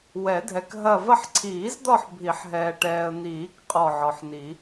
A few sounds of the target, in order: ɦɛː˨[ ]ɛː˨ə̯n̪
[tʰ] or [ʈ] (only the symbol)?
ʈ